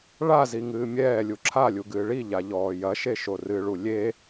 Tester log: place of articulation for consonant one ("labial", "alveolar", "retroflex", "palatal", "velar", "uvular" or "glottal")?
retroflex